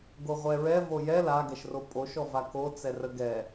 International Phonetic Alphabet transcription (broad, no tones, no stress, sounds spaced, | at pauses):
ɡ o ʁʷ ɛ ɹ ɛ v o j ɛ l a ɡ ɛ ʃ r o pʼ o ʃ ɔ v a k o t͡s ɛ r ə ɡ ɛ